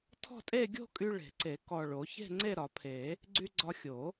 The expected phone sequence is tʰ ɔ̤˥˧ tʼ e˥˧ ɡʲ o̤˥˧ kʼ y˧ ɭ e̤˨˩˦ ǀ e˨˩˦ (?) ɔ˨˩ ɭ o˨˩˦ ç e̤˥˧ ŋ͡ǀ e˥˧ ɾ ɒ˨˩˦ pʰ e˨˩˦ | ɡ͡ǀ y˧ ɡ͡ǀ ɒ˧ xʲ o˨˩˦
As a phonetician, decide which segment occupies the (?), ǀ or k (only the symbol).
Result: k